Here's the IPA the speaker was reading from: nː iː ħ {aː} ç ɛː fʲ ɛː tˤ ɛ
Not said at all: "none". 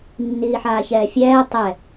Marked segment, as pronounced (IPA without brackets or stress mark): aː